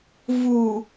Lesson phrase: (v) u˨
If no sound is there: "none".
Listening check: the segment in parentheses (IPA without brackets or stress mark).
v